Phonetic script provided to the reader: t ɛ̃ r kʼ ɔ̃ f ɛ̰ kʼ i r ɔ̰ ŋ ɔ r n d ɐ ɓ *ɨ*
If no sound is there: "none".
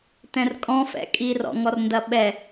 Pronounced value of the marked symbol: ɛ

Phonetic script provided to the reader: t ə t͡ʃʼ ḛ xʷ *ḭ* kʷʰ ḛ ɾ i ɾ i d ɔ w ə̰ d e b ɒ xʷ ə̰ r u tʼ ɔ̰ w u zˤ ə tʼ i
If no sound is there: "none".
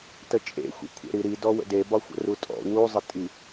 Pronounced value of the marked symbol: ḭ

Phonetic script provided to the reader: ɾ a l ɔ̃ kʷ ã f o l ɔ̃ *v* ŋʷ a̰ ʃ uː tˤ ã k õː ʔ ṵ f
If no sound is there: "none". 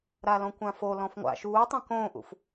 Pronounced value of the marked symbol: f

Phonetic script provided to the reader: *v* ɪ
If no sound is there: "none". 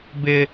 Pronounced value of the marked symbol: b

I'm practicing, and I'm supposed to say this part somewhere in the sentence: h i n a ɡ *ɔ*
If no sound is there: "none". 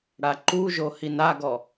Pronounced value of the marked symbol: ɔ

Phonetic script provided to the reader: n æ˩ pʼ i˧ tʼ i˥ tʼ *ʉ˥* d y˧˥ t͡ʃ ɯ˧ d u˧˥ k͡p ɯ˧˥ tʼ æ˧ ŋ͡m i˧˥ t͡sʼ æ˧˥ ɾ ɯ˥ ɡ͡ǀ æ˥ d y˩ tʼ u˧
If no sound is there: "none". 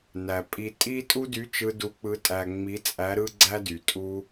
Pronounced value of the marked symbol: u˥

